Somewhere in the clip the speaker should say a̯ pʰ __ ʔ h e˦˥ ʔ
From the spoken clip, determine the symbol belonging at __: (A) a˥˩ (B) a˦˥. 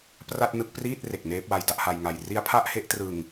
A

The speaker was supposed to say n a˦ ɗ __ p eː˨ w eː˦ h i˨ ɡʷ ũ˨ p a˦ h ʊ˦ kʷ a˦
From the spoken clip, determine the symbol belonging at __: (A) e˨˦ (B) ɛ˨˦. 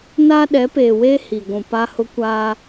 B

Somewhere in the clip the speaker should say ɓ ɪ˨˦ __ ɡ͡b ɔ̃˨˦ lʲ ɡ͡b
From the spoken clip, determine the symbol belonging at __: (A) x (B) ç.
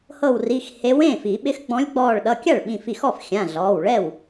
A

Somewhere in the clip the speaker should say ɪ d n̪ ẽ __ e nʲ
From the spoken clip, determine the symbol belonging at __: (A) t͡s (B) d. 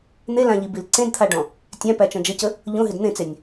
A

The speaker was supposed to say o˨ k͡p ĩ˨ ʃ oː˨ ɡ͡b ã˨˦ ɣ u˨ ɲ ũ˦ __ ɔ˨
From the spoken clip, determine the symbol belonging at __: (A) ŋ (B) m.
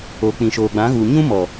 B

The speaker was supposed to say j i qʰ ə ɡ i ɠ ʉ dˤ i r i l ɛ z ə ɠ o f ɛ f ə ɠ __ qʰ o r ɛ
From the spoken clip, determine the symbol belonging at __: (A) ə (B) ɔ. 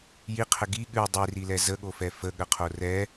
A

